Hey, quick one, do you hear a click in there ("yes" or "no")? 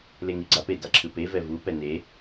yes